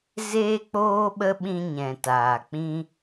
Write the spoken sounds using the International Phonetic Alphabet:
z eː˦ k͡p oː˦ ɓ ə˦ ɓ ĩ˧ ɲ ɛ̃˨ t aː˨ k͡p ĩ˦

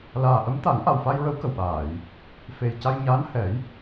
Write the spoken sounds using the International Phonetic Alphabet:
l aː˨˩ ʔ ə˧˥ m t̪ a˨˩˦ ŋ ʔ a˨˩ w f a˧ j ɹ ə˧˥ w k ə˨˩ w ɓ aː˨˩˨ j | f e˨˩ j c a˧ j ɲ aː˧˥ n h ɛ˨˩˦ j

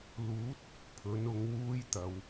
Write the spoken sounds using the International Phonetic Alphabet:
l uː˨˥ t̚ | pʰ ɵ˨˥ n ʊ˨˥ ŋ w uː˥ j t̪ ɐ˨˧ w

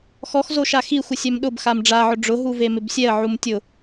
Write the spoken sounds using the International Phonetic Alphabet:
x ɔ x z o ʃ a x i xʷ ɪ sʲ ɛ m ɗ ʊ b x a m ɖ͡ʐ a ʕ ʊ ɖ͡ʐ ʊ ɦ u v e m ɪ b sʲ ɛ ə̯ ʕ u m tʲ ʊ

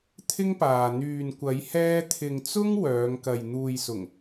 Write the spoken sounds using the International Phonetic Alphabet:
t̪ʰ ɪ˥ ŋ p aː˨ n̪ yː˨ n kʷ ɐ˨˧ j h ɛː˧ t̪ʰ ɪ˨ ŋ t͡s ʊ˥ ŋ w œː˨˧ ŋ k ɐ˨ j n̪ uː˨ j s ʊ˨˩ ŋ

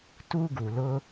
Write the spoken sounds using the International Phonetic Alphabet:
t u˦ ɡ u˩ l ʊ˦

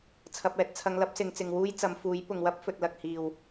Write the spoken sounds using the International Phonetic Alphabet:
t͡sʰ ɐ˧ p̚ ɛː˧ t̚ t͡sʰ ɐ˧ ŋ l ɐ˥ p̚ s ɪ˨˧ ŋ t͡s ɪ˨ ŋ w uː˥ j t͡s ɐ˨˧ m f uː˨˥ j p ʊ˨ ŋ w ɐ˥ p̚ f ɵ˨ t̚ l ɐ˨ k̚ h iː˨˩ w

